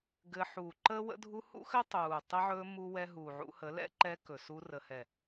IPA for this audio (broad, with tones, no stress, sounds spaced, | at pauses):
ɡ ɘ˧ ħ u˨ ǃ əː˦ w ə̰˦ dʱ u˦ h ṵ˦ x ɘ˦ tˤ uː˨ tˤ ə˧ ʕ ɵː˧ m u˦ w ɛ˦ ɦ uː˨ ʕ ṵ˧ h ə˨˦ l ɛ̰˦ ǃ ɛ˧ k ɵ˨ s u˧ r ə˨ h ɛ˨